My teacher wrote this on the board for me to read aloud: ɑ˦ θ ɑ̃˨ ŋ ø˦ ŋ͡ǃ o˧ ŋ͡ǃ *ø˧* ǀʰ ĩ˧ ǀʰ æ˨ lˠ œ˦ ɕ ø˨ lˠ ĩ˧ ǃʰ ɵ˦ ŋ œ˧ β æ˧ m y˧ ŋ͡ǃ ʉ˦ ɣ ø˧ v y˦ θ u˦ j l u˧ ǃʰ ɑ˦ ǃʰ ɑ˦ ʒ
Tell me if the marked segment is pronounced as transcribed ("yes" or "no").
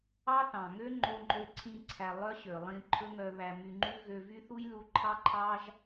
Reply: yes